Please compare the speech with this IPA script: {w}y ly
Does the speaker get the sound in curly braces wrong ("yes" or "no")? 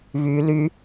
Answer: yes